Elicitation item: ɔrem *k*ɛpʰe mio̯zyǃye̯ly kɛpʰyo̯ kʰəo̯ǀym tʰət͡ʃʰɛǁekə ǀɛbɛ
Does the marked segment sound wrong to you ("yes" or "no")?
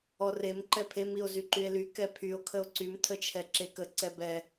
yes